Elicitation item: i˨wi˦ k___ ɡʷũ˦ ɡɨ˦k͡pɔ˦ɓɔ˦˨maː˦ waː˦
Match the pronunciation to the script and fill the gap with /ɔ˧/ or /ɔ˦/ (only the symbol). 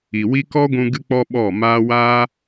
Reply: ɔ˦